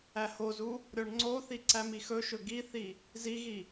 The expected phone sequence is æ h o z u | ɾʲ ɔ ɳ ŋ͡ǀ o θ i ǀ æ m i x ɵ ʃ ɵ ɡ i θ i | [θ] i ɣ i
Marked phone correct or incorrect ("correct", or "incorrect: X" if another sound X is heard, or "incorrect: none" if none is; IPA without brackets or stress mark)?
incorrect: z